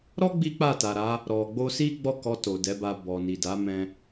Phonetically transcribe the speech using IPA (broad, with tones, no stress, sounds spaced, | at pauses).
ɾ ɔ˦ ɡ͡b i˦ k͡p a˦˨ t a˨ ɾ a˨˦ | ɾ ɔ˨ ɡ͡b o˧ s i˦ ɡ͡b ɔ˦˨ k ɔ˧ t o˨ d ɛ˨˦ b a˧ b ɔ˨ n i˨ d a˨˦ m ɛ̃˧